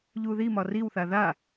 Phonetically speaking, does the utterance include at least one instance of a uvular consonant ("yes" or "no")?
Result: no